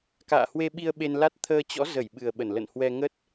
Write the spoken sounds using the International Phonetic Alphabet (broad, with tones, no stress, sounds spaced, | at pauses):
k a̰ː˧˨ h w e˧ ɓ i˧ ə̯ ɓ e˧ n l a˦˥ t̚ t̪ʰ əː˧ t͡ɕ ɔ̰˧˥ z ə˧˩ j ɓ ɨ˨˩ ə̯ ɓ ə˧˩ n l ə̰˧˨ n h w ɛ˧ ŋ ə˦˥ t̚